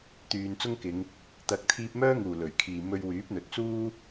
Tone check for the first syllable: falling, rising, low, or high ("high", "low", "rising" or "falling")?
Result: low